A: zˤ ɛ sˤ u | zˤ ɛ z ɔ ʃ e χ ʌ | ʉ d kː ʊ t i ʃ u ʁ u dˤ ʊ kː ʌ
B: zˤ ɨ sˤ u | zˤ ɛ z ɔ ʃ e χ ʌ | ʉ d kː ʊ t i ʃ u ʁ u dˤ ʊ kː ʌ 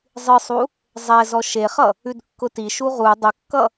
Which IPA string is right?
B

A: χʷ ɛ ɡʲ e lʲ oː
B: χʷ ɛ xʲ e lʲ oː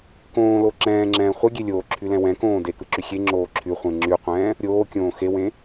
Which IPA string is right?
A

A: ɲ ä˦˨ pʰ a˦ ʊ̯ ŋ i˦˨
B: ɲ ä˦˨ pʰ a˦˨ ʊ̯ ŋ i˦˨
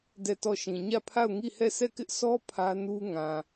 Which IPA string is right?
B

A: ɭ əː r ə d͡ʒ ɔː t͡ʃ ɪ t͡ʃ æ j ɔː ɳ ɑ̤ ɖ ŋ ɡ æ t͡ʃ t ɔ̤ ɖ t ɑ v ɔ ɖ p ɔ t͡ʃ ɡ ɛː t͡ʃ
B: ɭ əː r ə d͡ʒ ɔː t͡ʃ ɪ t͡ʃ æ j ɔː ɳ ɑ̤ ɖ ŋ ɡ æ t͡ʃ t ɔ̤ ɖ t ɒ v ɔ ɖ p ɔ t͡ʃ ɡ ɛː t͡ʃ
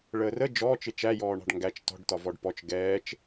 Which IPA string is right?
B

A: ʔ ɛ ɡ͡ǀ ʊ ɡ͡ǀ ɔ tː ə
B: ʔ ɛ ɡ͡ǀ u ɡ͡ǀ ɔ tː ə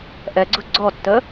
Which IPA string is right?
A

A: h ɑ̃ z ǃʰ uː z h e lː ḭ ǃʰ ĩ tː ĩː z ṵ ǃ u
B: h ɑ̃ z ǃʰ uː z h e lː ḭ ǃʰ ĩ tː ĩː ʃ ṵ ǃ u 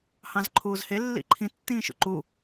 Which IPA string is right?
B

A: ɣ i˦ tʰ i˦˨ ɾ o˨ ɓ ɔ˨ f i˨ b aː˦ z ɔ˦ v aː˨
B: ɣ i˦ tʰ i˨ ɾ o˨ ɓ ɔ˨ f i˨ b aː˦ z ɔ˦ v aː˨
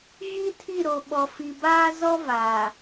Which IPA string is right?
A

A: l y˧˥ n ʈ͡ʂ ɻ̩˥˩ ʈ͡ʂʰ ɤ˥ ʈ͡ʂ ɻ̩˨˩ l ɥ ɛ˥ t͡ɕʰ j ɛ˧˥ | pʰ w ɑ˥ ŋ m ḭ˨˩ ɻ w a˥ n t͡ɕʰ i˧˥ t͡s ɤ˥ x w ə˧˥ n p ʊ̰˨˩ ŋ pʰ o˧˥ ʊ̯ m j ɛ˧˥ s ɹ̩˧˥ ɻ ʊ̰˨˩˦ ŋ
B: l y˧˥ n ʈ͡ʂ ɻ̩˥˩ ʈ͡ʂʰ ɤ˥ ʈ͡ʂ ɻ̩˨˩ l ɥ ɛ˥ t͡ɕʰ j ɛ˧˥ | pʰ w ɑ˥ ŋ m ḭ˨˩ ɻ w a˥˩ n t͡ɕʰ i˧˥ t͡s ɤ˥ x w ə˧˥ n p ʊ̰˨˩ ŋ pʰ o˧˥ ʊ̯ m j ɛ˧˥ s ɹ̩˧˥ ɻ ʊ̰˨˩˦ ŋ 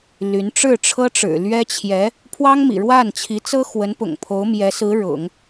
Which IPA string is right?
B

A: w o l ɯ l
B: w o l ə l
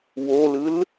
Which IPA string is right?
A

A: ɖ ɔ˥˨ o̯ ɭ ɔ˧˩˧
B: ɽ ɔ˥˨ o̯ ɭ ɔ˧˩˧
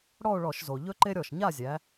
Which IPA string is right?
B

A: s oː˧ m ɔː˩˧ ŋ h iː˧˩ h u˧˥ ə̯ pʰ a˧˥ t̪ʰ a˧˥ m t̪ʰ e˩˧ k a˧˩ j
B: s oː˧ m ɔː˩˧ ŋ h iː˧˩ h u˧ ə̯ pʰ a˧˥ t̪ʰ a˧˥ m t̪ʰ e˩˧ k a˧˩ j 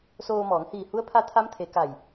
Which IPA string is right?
A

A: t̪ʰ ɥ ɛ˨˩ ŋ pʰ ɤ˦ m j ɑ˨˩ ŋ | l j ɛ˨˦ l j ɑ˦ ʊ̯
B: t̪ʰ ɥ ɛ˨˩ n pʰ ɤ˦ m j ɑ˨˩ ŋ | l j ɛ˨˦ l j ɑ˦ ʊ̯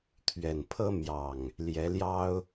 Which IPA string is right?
B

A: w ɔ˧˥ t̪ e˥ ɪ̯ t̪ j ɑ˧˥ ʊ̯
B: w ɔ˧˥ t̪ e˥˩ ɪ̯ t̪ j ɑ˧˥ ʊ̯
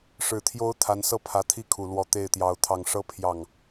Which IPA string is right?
B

